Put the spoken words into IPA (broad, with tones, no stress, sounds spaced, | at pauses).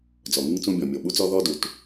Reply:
d͡z ɔ˩ ŋ ɨ˥ ŋ t͡s ũ˥ bʲ ɔ̃˩ mʲ o˩ ɓ u˥ t͡s ɔ˥ ð ɔ˥ d u˩ t